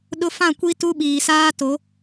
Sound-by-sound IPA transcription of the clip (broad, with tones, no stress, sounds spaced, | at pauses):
ɗ ʊ˦ f ã˦˨ kʷ i˦ t u˦ ɓ iː˨ s aː˦ t o˨˦